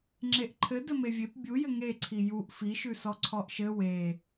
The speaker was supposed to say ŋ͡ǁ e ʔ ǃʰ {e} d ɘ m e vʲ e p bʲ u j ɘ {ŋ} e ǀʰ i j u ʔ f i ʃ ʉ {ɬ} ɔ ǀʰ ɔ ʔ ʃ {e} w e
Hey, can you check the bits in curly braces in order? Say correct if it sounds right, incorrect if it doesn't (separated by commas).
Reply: incorrect, correct, incorrect, incorrect